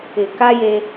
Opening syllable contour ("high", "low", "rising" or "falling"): low